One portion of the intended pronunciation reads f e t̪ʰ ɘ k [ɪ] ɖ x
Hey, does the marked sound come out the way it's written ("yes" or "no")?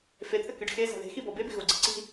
no